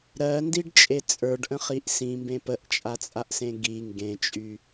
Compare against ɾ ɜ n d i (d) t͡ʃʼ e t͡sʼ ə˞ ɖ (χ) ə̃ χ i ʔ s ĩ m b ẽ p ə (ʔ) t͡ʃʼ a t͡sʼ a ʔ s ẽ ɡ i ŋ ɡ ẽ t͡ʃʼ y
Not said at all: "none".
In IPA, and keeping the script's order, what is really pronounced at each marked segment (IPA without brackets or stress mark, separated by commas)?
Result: ɖ, ʔ, ʔ